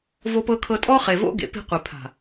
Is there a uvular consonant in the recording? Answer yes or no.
yes